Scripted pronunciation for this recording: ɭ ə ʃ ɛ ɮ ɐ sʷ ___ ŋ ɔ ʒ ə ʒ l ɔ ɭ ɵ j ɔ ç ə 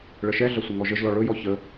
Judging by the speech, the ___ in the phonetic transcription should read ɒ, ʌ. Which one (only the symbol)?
ʌ